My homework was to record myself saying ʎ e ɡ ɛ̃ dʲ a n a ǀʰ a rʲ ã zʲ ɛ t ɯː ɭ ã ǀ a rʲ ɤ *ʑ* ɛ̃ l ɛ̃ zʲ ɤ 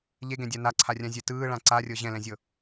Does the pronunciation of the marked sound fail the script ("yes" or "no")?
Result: no